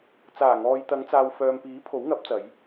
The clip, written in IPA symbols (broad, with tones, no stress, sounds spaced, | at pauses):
t͡s aː˨˩ ŋ ɔː˨ j t̪ ɐ˨˧ ŋ t͡s aː˨ w f œː˨ m p iː˨˥ pʰ o˨˥ w ŋ ɐ˨˥ p̚ t͡s ɐ˨˧ j